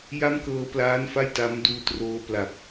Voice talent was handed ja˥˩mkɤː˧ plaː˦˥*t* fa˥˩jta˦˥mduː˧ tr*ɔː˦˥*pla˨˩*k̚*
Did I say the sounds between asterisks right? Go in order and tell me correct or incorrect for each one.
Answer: incorrect: n, incorrect: oː˦˥, incorrect: p̚

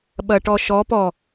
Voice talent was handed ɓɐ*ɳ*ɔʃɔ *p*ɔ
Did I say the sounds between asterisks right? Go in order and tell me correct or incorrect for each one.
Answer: incorrect: ʈ, correct

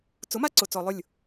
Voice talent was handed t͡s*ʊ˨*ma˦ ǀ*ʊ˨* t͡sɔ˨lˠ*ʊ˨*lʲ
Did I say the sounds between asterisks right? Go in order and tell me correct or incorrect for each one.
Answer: incorrect: ʊ˨˦, correct, incorrect: ʊ˦˨

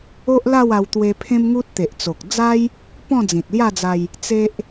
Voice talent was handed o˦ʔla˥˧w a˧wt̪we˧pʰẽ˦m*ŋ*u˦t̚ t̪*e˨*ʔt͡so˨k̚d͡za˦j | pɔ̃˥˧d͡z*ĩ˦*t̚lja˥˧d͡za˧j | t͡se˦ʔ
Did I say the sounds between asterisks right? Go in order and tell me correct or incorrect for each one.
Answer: correct, correct, incorrect: ĩ˨

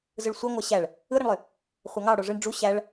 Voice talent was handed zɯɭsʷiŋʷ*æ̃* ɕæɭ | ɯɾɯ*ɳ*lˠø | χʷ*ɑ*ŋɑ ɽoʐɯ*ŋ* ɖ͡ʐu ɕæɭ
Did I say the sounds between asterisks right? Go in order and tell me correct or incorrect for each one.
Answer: incorrect: æ, correct, correct, incorrect: ɳ

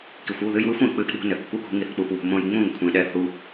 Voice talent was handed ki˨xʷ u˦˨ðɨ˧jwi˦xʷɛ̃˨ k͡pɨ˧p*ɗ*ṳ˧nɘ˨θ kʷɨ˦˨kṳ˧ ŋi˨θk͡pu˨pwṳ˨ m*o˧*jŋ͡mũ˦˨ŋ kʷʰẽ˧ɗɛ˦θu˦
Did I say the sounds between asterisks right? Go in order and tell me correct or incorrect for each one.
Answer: correct, incorrect: õ˧

